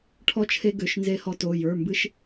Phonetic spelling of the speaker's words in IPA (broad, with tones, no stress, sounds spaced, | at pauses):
ʈʰ ɔ˦ t͡ʃʰ e˦ ɡ ø˩˧˩ ʃ n z e˦ h ɔ˦ t o˩˧˩ j ə˞˩˧˩ m b ɨ˦ ʃ